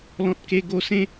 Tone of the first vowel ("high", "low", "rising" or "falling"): high